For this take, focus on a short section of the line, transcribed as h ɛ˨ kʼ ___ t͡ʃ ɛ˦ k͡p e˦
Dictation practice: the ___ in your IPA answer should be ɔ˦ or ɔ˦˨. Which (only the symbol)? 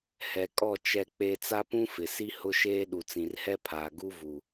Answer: ɔ˦˨